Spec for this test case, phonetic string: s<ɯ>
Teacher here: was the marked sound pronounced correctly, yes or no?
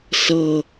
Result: no